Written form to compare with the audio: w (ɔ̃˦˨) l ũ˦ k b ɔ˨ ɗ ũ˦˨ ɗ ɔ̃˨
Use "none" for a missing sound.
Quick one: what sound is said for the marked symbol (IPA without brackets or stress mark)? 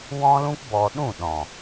ɔ̃˦